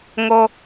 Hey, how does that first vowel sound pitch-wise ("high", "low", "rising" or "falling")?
high